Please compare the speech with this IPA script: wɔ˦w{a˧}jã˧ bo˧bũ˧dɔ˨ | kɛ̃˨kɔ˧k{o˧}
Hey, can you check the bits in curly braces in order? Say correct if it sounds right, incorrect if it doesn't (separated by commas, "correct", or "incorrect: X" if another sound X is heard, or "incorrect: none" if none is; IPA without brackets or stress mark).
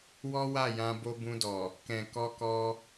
incorrect: a˦˨, incorrect: ɔ˧